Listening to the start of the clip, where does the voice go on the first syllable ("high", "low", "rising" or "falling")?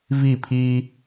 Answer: falling